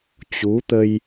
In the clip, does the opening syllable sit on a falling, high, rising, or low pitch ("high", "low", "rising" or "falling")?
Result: rising